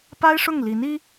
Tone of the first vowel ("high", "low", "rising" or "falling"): high